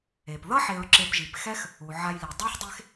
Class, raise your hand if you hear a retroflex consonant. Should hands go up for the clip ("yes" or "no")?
no